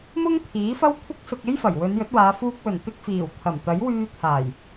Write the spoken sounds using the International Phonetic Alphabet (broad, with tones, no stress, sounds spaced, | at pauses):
m ʊ˥ ŋ t̪ʰ iː˨˥ f ɐ˥ w kʷʰ ɐ˥ k̚ s ʊ˧ k̚ e˥ j f ɐ˨˩ j w ɵ˨˧ n j ɵ˨˥ t̚ w aː˨˧ f uː˧ k̚ w ɵ˨˩ n t̪ ɪ˧ k̚ f iː˨˩ w t̪ʰ ɐ˨˩ m t̪ ɐ˨˥ j w yː˧ t̪ʰ aː˨˩ j